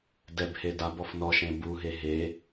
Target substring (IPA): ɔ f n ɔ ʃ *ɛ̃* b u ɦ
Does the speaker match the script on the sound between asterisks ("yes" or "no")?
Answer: no